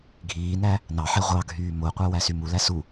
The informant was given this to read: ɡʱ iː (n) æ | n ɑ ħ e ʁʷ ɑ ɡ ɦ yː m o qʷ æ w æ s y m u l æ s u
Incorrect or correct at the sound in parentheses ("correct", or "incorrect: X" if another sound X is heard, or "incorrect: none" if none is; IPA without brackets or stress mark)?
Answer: correct